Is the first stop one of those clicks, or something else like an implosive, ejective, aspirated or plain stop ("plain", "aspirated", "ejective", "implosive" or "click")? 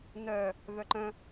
click